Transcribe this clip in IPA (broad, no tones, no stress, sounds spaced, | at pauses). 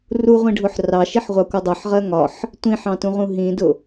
r u ʁʷ ĩ ɖʱ ʊ ħ r ɑ ʃ i ħ ʁʷ ɑ kʷ ʌ dˤ ʌ ħ ʁ ɜ ŋ ɒ ħ | tʷ ĩ ħ ɑ̃ t ũ ʁ ũ ɦ ĩ d ʊ